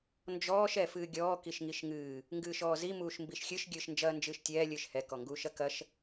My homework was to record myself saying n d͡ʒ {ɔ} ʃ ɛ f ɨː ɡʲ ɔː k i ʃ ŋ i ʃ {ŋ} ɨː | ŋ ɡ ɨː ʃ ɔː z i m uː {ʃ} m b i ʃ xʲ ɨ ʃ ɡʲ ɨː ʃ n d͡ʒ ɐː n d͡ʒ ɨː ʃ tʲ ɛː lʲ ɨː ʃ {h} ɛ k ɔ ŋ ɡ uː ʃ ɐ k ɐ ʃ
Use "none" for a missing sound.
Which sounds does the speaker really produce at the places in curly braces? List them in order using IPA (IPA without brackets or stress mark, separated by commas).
ɔː, ŋ, ʃ, h